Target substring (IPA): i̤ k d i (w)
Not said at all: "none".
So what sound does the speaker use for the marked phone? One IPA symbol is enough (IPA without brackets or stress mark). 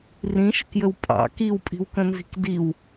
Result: w